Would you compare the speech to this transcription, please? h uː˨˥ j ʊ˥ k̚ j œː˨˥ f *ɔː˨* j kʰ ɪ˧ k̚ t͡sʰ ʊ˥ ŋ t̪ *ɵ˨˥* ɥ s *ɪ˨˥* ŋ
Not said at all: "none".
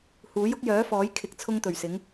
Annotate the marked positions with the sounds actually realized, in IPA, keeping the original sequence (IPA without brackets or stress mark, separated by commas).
ɔː˨˥, ɵ˨˩, ɪ˨˥